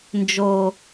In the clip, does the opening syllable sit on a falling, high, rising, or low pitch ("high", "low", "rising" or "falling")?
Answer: low